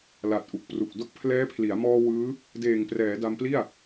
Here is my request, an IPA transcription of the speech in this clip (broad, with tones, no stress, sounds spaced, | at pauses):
l a˨˩ t̚ ʔ u˨˩ k̚ p r u˨˩ k̚ d o˦˥ k̚ pʰ l ɛː˦˥ pʰ l i˩˦ a̯ m ɔː˧ w ɯː˦˥ | d eː˨˩ ŋ p r ɛː˩˦ d a˧ m p l i˥˩ a̯